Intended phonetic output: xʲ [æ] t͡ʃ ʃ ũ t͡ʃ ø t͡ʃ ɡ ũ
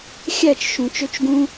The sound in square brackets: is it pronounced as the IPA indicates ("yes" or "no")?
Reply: yes